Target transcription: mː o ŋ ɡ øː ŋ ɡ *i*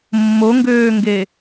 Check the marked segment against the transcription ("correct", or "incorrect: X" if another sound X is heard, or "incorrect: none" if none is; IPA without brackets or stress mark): incorrect: e